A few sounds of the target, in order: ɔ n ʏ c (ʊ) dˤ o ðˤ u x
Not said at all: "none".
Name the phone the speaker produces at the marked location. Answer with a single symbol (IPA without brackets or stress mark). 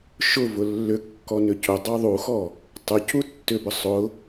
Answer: ʊ